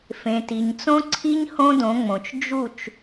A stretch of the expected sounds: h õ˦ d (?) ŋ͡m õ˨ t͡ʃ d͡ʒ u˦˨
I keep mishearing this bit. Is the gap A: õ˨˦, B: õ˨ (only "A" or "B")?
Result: A